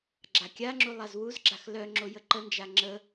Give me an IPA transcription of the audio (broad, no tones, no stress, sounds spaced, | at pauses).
ɡ͡ǁ a kʲ a ŋ͡ǁ u lˠ a z w u z ɡ͡ǁ a x l œ ŋ͡ǁ o j ə ǃ ə n d͡ʒ a ŋ͡ǁ ə